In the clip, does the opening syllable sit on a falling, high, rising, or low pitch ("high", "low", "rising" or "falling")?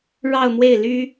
falling